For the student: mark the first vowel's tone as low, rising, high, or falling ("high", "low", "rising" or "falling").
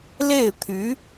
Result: falling